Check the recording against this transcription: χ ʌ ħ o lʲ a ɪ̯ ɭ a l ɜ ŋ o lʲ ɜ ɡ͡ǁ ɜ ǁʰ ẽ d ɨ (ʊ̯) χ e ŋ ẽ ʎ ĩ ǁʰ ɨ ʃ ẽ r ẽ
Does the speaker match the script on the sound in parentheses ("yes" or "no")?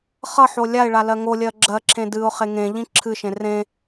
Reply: yes